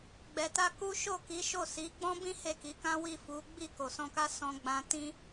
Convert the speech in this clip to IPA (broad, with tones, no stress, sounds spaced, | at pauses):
ɡ͡b ɛ˨ t a˧ k u˦ ʃ o˦˨ k i˨˦ ʃ o˦˨ s i˨˦ ɡ͡b ɔ̃˦ b ĩ˦ h e˦˨ k i˨˦ k ã˦ w i˦˨ f u˨˦ ɡ͡b i˦˨ k o˨ s ɔ̃˧ k a˦ s ɔ̃˧ ɡ͡b ã˧ t ĩ˦